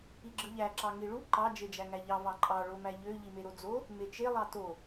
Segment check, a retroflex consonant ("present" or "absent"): present